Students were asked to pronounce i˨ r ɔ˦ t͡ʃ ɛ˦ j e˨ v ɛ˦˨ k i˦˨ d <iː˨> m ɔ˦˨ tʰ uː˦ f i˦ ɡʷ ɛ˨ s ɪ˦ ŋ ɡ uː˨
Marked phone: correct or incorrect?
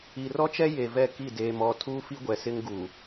incorrect